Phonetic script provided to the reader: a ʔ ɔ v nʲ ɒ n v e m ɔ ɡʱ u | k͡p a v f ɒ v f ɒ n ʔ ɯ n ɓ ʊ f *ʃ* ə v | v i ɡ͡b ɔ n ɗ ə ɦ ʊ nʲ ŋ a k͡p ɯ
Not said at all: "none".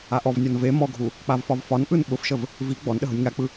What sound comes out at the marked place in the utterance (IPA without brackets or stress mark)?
ʃ